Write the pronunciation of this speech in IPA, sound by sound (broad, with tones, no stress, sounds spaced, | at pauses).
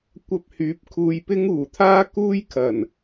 kʷ ɐ˧ p̚ h yː˨˥ p̚ kʰ uː˧ j p ɪ˥ ŋ uː˨˩ t̪ʰ aː˥ k uː˥ j kʰ ɐ˨˩ n